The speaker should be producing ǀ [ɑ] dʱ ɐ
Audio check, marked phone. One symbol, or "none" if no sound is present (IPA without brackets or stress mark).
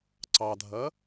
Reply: ɑ